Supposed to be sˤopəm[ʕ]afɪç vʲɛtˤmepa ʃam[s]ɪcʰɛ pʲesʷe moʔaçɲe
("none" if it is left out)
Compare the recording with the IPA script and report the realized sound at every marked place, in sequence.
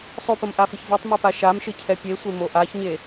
ʔ, ʃ

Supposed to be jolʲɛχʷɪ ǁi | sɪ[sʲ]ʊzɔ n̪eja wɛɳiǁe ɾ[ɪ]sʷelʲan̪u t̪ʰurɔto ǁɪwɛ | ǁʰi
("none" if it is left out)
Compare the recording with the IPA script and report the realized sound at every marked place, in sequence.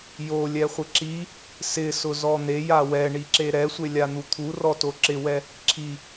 s, ɛ

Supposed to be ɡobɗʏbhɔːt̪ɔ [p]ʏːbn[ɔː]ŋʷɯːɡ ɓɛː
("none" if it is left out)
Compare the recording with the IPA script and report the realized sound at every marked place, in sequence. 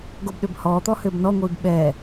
h, ɔ

